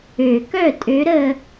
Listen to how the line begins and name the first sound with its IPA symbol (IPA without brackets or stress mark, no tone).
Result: ø